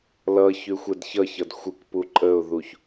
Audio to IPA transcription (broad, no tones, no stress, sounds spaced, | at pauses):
l ʌ ç ʉ xʷ ɛ d ç ʌ ç ʌ d xʷ ɨ k p u ǃʼ ə ʊ̯ ð u ç